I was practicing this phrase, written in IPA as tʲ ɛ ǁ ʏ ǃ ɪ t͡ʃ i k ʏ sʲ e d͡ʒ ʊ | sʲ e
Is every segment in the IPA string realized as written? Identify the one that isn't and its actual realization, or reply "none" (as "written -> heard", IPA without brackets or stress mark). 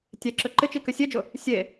none